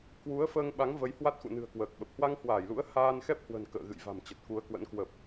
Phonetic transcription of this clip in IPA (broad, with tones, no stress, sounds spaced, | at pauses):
k w u˨˦ ə̯ f əː˧ ŋ ɓ a˨˦ ŋ v ə˨˦ j h w a˦˥ t̚ x ṵ˧˨ n ɨ̤˨˩ ə̯ k w əː˨˩ k̚ ɓ ə˨˩ p̚ h w a˧ ŋ h w aː˧˩ j l ṵ˧˥ ə̯ h aː˧ n x ɛ˦˥ p̚ h w ə̤˨˩ n k ə̰ː˧˨ ɣ ɨ̰˧˨ j v a̤˨˩ m t͡ɕ ə˨˩ t̚ k u˨˦ ə̯ k w ə̰˧˥ n k w ə˨˩ p̚